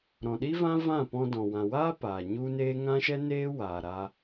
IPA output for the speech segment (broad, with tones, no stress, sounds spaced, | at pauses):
ɾ ɔ̃˨ ɗ i˦ v ã˦ v ã˦˨ p ɔ̃˧ d ɔ̃˨ w ã˨ w aː˦ p aː˨ ɲ u˦ n eː˦ ŋ ã˦ ʃ ɛ˦ n eː˦ w aː˨ ɾ aː˦